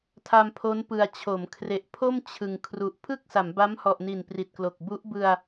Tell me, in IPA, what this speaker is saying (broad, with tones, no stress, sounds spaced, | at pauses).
tʰ a˧ m pʰ o˦˥ n p ɯ˨˩ a̯ t͡ɕʰ o˩˦ m kʰ r e˨˩ ʔ pʰ o˥˩ m t͡ɕʰ ɯ˨˩ ŋ kʰ r u˨˩ ʔ pʰ ɯ˥˩ k̚ s a˩˦ m b a˦˥ m h ɔ˨˩ ʔ n i˨˩ n p r i˨˩ t̚ k l o˨˩ k̚ b u˦˥ ʔ b ɯ˧ a̯